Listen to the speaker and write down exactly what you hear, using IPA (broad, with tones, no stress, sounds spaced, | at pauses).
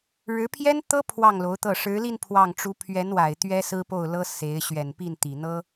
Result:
ɻ ɻ̩˧˥ pʰ j ɛ˥ n t̪ ɤ˥ pʰ w ɑ˥˩ ŋ l o˧˥ ʊ̯ t̪ ɤ˥˩ ʂ ɻ̩˧˥ l i˥˧ n pʰ w ɑ˥˩ ŋ ʈ͡ʂ u˧˥ pʰ ɥ ɛ˧˥ n w a˨˩ ɪ̯ t̪ ɥ ɛ˥ s ɹ̩˥ p o˥˩ ʊ̯ l ɤ˥ s e˧˥ ɪ̯ ɕ ɥ ɛ˨˩ n p i˥˩ n t̪ i˨˩ n̪ ɤ˥